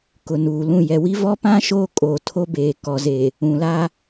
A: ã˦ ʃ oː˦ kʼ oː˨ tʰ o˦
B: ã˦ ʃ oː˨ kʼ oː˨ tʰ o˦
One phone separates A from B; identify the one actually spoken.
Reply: A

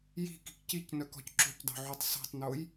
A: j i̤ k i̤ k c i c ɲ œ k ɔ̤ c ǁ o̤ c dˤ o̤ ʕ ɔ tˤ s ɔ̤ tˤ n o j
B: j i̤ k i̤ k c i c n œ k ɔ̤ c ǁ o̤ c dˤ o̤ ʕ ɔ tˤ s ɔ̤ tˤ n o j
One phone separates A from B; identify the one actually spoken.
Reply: B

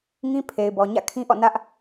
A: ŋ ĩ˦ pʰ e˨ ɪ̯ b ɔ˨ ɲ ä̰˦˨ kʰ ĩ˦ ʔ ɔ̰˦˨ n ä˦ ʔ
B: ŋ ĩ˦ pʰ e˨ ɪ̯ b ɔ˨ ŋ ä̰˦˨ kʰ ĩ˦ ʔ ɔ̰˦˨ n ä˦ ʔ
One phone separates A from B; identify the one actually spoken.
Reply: A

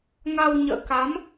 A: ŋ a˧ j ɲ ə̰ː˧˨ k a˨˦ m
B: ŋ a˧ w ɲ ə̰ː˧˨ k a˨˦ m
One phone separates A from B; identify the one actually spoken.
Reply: B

